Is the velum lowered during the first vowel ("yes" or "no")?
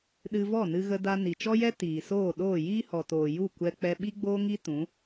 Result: no